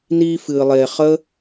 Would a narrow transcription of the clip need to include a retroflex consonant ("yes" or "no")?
no